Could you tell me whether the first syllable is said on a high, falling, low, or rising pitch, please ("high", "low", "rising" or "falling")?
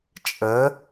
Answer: rising